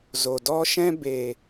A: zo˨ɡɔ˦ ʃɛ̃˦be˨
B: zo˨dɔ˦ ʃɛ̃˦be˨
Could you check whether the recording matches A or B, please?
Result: B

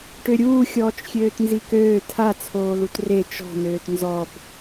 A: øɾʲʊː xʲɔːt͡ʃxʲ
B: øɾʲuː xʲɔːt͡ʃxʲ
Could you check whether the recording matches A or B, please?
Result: B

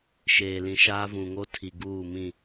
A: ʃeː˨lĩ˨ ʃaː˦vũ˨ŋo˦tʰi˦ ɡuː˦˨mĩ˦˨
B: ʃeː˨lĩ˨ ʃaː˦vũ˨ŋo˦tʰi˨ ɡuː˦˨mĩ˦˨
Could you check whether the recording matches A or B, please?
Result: B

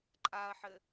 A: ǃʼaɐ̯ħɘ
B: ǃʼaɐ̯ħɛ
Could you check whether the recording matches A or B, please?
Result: A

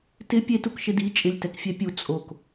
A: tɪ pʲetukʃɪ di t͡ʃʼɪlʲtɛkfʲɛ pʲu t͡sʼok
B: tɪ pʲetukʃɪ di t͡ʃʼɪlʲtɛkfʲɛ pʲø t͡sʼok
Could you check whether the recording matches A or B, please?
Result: A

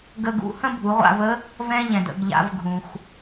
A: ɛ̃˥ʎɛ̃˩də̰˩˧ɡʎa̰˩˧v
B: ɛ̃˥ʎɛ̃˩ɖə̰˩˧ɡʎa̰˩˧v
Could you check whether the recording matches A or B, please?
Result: A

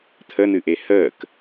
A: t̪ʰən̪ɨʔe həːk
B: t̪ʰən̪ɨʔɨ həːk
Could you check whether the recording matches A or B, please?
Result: A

